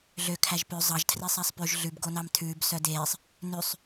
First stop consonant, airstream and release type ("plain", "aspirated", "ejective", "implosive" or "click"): aspirated